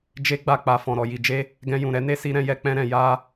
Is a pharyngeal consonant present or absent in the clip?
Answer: absent